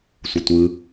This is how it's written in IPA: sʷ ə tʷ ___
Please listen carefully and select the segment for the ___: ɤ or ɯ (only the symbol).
ɯ